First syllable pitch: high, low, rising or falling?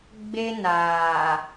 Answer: high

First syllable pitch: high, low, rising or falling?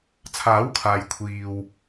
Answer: rising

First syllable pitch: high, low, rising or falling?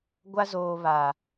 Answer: high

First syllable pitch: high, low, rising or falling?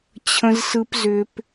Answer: high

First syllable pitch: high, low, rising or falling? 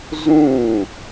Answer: falling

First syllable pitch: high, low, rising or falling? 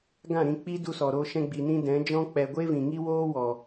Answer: falling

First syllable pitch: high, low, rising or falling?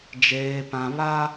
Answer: high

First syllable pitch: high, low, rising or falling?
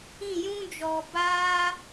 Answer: falling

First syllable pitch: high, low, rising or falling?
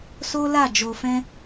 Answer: high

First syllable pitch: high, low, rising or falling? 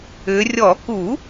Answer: rising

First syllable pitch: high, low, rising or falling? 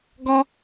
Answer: high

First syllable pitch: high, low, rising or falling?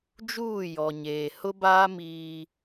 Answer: falling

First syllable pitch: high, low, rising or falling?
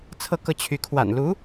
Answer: falling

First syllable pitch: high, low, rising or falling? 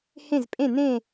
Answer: falling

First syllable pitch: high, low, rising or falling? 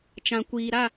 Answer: low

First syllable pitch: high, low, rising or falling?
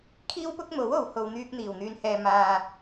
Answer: high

